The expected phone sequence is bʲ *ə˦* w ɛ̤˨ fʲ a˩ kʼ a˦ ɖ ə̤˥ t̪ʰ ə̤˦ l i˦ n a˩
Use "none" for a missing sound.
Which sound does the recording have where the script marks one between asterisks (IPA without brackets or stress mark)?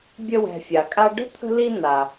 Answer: ə˦